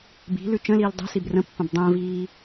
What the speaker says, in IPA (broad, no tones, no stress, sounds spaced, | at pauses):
b i̤ l ʉ t͡ʃ ə̃ l iː l dˤ ɛ̤ s i b r ə̃ pː ə̃ b dˤ ə̃ː v iː